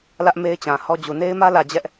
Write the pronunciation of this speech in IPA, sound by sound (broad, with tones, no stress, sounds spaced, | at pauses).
l ä˦ ʔ m e˦ ɪ̯ t͡ɕ ã˨ h ɔ˦ d͡ʑ u˨ n e˦ ɪ̯ m ä˦ l ä˨ d͡ʑ ɛ˦ ʔ